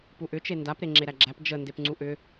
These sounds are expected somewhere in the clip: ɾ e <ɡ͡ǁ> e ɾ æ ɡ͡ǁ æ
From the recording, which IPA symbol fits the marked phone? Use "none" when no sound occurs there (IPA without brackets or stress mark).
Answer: ŋ͡ǁ